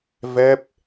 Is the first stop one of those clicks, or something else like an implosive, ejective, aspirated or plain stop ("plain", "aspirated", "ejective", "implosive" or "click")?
plain